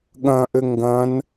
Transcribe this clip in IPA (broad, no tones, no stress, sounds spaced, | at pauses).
ɠ ɐ̃ ʔ ɘ ŋ ɡ ɐ̃ n